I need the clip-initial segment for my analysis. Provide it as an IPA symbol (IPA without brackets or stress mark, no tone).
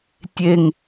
tʲ